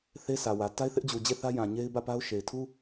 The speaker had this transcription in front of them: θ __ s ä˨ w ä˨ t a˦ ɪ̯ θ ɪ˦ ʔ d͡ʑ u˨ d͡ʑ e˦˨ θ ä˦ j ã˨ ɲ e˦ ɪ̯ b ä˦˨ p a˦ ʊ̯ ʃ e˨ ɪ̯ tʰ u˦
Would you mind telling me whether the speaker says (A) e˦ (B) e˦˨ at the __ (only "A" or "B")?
A